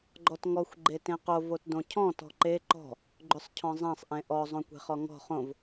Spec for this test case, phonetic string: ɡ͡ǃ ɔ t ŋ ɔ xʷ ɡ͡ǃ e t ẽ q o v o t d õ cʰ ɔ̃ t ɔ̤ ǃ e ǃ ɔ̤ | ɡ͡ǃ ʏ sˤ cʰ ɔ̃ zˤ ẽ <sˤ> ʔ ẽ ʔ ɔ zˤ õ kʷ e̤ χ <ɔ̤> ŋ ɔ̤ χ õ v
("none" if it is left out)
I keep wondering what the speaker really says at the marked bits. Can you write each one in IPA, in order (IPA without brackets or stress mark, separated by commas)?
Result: sˤ, ɔ